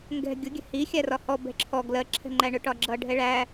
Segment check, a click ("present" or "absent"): present